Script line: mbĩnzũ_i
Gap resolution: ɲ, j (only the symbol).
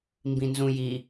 j